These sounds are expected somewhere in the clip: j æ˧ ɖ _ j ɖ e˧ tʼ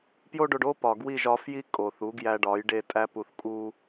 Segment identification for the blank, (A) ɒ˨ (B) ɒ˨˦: B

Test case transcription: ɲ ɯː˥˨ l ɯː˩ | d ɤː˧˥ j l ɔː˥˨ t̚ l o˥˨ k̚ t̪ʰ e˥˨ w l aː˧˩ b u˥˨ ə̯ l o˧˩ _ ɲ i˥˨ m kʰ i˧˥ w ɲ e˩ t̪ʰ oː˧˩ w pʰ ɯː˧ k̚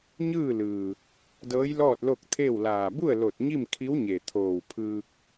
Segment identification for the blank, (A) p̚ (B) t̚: B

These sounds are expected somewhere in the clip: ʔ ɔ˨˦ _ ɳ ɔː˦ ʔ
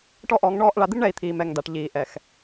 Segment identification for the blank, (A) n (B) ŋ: B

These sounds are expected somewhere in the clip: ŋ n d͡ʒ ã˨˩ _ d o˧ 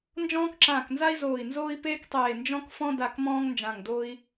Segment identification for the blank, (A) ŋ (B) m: A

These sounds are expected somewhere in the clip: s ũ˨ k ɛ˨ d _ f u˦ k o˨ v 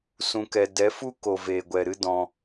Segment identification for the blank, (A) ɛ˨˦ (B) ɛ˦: A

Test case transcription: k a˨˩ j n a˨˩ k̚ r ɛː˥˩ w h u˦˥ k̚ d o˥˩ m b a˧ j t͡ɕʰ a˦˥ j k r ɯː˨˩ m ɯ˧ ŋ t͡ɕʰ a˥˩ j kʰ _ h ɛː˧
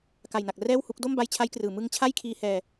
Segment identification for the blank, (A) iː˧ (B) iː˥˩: A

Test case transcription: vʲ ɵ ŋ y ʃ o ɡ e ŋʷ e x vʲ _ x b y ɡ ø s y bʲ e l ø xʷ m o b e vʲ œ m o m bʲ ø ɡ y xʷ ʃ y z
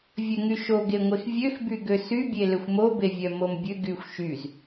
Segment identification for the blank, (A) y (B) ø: B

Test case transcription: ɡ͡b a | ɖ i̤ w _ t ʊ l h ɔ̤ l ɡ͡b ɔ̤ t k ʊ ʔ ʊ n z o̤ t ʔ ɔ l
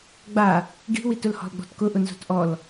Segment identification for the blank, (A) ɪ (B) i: B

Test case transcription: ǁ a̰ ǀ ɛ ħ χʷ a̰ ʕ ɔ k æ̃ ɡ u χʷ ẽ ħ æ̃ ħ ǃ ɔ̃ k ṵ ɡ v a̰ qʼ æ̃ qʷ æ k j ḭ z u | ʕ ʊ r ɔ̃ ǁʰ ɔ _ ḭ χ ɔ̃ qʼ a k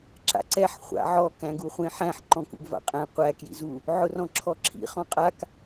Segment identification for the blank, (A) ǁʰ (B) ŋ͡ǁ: A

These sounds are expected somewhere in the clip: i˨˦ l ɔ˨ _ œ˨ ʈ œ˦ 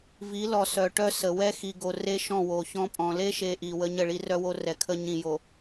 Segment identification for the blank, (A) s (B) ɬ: A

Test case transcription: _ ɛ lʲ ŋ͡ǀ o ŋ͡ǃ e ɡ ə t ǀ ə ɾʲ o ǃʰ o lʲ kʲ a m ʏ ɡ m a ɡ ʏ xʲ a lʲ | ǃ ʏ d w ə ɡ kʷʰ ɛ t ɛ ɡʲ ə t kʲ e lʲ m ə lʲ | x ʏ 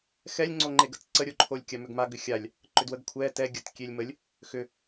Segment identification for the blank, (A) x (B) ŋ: A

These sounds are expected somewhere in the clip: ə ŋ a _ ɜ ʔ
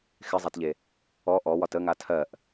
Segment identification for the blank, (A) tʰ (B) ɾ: A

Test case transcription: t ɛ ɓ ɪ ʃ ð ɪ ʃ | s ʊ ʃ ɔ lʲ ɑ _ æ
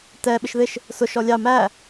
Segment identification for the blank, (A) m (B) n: A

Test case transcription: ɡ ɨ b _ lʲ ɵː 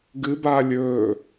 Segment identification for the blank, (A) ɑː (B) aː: B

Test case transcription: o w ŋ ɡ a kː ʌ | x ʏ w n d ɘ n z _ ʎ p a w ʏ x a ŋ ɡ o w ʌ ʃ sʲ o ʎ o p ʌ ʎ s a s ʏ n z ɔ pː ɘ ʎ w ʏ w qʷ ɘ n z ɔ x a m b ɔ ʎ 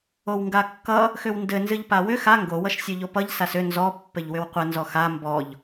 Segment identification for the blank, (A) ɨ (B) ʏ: A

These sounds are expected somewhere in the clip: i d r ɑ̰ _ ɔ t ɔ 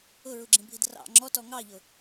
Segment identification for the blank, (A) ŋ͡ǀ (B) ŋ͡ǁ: B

